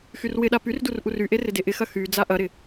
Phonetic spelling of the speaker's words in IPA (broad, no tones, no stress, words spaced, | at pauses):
xyrwɪɗa pyrdur ʔuryʔe rɪdeʔɪxɐ xy d͡zaʔɐɾɪ